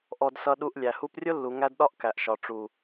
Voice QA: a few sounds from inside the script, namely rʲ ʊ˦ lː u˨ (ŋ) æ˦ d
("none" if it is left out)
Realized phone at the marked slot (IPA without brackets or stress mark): ŋ